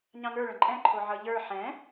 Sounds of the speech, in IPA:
ɲ ɑ̃ ŋ ə˞ ɭ ə̃ ǃʼ ɛ̃ ǃʰ o ʕ ʌ ʎ ə˞ ħ ɛ̃

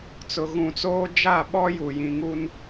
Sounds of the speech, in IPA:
t͡s ʊ˨ ɣ ũ˨ t͡s oː˦ d͡ʒ a˦˨ ɓ ɔ˦ j u˨ j ĩ˨ ŋ u˦ n

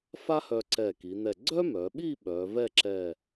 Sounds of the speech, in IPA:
f a˥ h œ˧ ǀ ɛ˧˩ k i˩˧ n̪ ɛ˧˩ ɡ͡ǀ œ˥ m œ˩˧ ɓ i˥˧ ɓ œ˩˧ v ɛ˥˧ ǁ ɛ˧˩

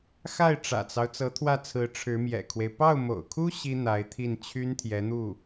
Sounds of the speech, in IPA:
x a˥˩ ɪ̯ ʈ͡ʂ ä̰˨˩ t͡s ɑ˦ ʊ̯ t͡s ɤ˧˥ t̪ʰ w ä˥˩ t͡sʰ ɹ̩˧˥ ʈ͡ʂʰ ɻ̩˧˥ m j ɛ̰˨˩ kʰ w e˦ ɪ̯ p ɑ˥˩ ʊ̯ m o̰˨˩ ʊ̯ kʰ u˥ ɕ i˥ n̪ a˧˥ ɪ̯ t̪ʰ i˥˩ n t͡ɕʰ y˥ n t̪ʰ j ɛ˧˥ n̪ u˥˩

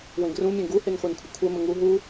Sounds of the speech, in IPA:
w ẽ ɡ r ũ mʲ ẽ ɡ u h e n χʷ e n kʷʰ ɘ kʷʰ ɛ m ɘ ŋ u ɦ u

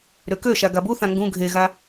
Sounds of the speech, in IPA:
ɾ ø k ø ʃ a ɡ a b u θ ã ŋ ɡ ũ ɡʱ e ɣ a

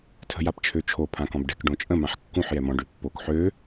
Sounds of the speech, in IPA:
tʰ ə̤ j a p t͡ʃʰ ø t͡ʃʰ o pʰ ã k ɔ̃ b ɖ ɛ̤ k ɖ õ t͡ʃʼ ə̃ m ã ħ kː ũ ħ j ɛ m ɔ̃ ɖ ø pː o k ħ ø

